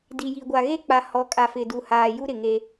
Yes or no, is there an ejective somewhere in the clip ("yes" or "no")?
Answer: yes